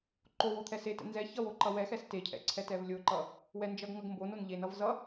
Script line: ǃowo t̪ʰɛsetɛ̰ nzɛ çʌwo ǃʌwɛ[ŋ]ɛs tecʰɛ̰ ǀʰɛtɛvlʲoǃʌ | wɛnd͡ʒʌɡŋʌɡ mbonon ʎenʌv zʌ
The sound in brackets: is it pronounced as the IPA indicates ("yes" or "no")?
no